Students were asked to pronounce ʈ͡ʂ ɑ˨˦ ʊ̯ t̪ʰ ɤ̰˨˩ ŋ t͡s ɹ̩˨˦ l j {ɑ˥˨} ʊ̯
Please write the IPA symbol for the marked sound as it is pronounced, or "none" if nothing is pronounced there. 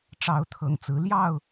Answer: ɑ˥˨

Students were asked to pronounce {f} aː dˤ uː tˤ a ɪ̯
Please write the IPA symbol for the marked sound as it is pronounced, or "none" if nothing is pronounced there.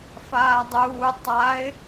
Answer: f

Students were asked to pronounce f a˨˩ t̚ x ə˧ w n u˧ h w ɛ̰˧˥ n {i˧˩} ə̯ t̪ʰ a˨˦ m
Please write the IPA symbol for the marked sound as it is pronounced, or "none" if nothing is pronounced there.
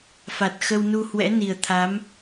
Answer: i˨˩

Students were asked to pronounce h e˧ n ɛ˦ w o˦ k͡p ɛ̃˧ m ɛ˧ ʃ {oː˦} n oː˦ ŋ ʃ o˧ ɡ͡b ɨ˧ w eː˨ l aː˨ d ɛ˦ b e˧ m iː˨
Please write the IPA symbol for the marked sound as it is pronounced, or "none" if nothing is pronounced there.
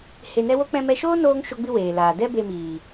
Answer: oː˦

